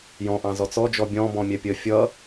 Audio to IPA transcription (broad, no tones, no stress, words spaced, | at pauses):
jɔ̃ʔɑ̃ zɔt͡sɔd͡ʒɔ bʲɔ̃ bɔ̃mʲɛpʲə fʲʌ